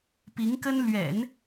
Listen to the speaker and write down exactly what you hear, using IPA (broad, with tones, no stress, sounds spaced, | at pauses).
p i˧˥ ŋ k ə˥ n l ɥ ɛ̰˨˩˦ n